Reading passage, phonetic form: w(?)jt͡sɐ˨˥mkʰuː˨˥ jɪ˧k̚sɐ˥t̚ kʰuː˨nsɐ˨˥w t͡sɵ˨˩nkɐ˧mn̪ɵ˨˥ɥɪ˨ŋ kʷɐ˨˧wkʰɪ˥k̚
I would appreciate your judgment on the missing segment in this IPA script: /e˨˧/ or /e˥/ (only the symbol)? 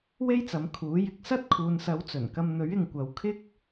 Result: e˥